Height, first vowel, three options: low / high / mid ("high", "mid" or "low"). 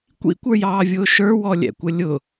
high